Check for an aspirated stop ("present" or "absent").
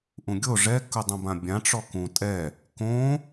absent